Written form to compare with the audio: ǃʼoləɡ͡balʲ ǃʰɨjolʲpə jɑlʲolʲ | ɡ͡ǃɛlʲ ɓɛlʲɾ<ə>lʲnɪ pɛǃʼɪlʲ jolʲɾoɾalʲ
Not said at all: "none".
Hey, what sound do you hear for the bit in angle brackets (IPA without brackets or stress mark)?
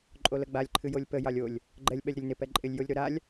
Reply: ə